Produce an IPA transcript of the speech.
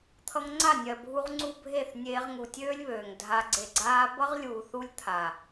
t̪ʰ ʌ˧ ŋ ŋ͡ǀ a˦˨ nʲ ɜ˨ bʱ u˧ ʁ ŋ͡ǀ u˦ bʱ e˦˨ θ nʲ eː˧ ʁ ŋ u˨ tʲ øː˦ lʲ β øː˨ ŋ dʱ a˧ ɡ͡ǀ e˨ ɡ͡ǀ aː˧ b ʌ˦ ʁ lʲ uː˨ θ u˦ lʲ t̪ʰ a˨

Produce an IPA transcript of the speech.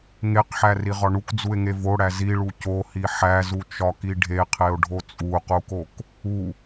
ŋ e q ħ æ r i ʁ ɒ ɳ u k d͡z u e̯ ŋ e v o ɽ æ z i ɭ u c o h i ħ æ z u t͡ʃ ɒ k i ɖʱ e qʰ e o̯ ɖʱ o t͡sʼ u q u k o k | u

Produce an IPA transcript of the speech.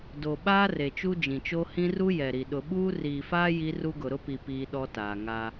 d o˨ ɓ aː˦ r e˨ t͡ʃ u˦ d͡ʒ ĩ˨ t͡ʃ o˦ h ĩ˦ r u˦ j ɛ˨ ɾ i˨ ɗ ʊ˨ ɓ uː˦ r iː˨ f aː˦ j i˦ r u˦ ɡ ʊ˨ ɾ ʊ˦ p i˨ p iː˦ ɗ ɔ˦ t aː˨ ŋ a˦

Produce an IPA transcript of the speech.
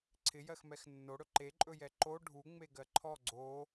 ǀʰ ɪ j ɜ x m ɛ x nː o ɽ ɵ ǃ e ǃʼ ɵ j ɛ ǃ o ɖʱ u ŋ͡m e ɡ ɜ ǃʰ ɔ ɡ͡ǀ o

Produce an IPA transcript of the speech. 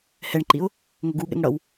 h ɛ ɳ ǃ i ʊ̯ | ŋ ɵ ɡ u ɠ ɛ̰ ŋ ɽ ʌ w

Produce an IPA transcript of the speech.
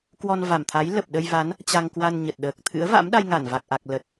k w ɔ˧ n v a˨˩ m t̪ʰ a˨˦ j l ə˨˩ p̚ ɗ ə˧ j v a˨˦ n | t͡ɕ a˧ ŋ k w a˧ n ɲ ə˨˩ t̚ ɗ əː˨˩ k̚ t̪ʰ ɨ̰˧˥ ə̯ v a̰˧˥ m ɗ a˧ j ŋ a˧˩ n v a˨˩ k̚ ʔ a˨˩ k̚ l ə˨˩ t̚

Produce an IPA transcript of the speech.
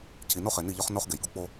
cʰ i˨ n o˦ χ e˨ n i˦˨ ʎ ɒ˦ χ n o˦ χ ɡ e˨ j ɡ u˦ k͡p o˦

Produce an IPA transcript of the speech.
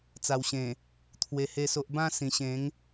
t͡s a˨˩ w ɕ ẽ˨˩ | t̪ʰ w e˧ h e˥˧ s o˦ ʔ b ã˥˧ s ĩ˨˩ ɕ ẽ˨˦ ŋ

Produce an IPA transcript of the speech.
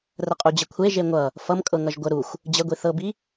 r ə qʼ u d͡ʑ ə kʷʰ e ʒ e ŋʷ ʌ | f ʌ m kʼ ɤ ŋ ʌ ʒ ɡʷ ə ɾ u xʷ | d͡ʑ ə ɡʷ i θ ɤ b i

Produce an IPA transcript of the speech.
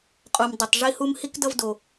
qʼ o˨ m dˤ u˩ tˤ ʐ i˦ h u˦ m h i˥ k d ʌ˦ v d o˩

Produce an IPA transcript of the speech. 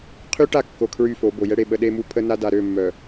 qʰ y˦ ʈ a˦˨ kː o˨ kʰ ɹ y˦˨ f o˨˦ b o˨ j ɛ˦ ɽ e˨ ɓ ə˦ ɗ e˦ m u˦ pʰ ə˦ n a˦ d a˨ ɾ ø˦˨ mː œ˨

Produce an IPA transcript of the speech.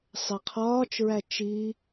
sˤ e qʰ ɒː t͡ʃ ɹ æ t͡ʃ i

